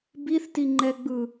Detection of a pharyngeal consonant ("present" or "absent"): absent